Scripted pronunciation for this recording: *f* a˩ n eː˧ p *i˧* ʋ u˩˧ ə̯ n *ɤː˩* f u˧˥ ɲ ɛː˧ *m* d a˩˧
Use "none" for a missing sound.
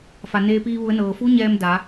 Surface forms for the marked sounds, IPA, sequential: f, iː˧, ɤː˩, m

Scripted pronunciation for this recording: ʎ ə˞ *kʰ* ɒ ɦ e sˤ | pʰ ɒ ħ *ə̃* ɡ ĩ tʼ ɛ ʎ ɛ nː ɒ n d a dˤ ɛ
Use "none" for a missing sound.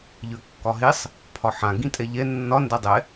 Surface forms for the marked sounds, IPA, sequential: kː, ã

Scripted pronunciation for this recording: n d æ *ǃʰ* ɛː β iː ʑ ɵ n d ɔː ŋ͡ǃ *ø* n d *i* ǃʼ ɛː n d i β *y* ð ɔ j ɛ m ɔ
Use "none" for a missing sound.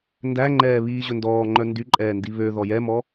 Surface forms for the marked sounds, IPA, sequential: ŋ͡ǃ, œ, y, ø

